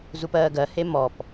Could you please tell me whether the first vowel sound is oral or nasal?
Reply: oral